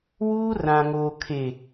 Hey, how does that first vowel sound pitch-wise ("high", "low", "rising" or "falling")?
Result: high